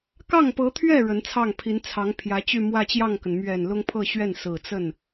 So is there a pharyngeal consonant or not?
no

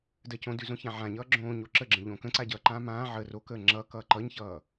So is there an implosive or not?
no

